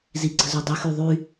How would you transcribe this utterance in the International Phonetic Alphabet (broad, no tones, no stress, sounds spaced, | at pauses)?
z i ǀ ə̤ z u dˤ ə x y ðˤ y